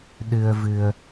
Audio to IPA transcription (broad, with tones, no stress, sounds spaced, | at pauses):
ɗ ɨ˧ ə̯ v ɨ˧ ə̯